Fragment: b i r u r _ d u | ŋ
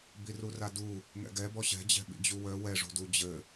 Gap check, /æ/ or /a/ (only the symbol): a